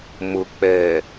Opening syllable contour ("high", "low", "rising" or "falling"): low